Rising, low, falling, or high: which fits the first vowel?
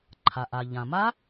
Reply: low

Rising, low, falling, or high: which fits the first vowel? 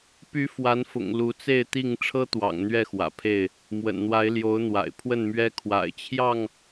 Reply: rising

